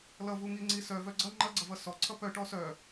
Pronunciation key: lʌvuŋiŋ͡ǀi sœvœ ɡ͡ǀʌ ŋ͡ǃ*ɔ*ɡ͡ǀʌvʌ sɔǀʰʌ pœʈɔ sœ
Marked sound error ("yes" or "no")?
yes